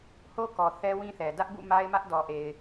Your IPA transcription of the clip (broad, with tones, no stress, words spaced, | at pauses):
ho˦kɔ˨ θɛ˦wĩ˦θɛ˨ dä˦ʔbṵ˦˨ ma˦ɪ̯mä˦ʔdɔ˨ʔe˨ɪ̯